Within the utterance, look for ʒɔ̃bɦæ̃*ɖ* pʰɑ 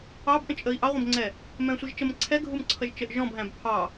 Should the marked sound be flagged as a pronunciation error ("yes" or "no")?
yes